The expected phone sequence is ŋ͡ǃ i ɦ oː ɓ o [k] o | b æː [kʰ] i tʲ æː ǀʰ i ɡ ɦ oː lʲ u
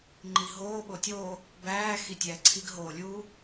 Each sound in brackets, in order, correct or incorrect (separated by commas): incorrect, incorrect